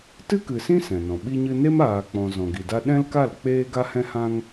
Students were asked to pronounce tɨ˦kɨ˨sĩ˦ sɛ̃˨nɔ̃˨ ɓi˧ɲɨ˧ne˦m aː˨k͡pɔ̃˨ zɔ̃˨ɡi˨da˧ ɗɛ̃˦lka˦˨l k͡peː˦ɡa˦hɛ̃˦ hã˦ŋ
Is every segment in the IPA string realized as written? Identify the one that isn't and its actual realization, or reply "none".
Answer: none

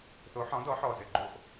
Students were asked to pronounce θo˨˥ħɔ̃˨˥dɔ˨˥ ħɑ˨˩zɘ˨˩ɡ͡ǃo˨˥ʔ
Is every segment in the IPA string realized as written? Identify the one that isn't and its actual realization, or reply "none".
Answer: ɑ˨˩ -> ɔ˨˩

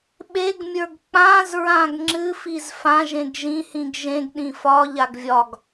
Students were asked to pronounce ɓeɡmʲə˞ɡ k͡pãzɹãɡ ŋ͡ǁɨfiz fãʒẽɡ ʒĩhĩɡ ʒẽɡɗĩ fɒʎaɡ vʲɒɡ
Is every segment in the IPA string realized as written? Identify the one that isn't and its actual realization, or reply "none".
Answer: none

